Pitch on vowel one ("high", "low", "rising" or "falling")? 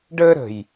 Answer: high